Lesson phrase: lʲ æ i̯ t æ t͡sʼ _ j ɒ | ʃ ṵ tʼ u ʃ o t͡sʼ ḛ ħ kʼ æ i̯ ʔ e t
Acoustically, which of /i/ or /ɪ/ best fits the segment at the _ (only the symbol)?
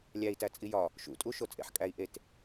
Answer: i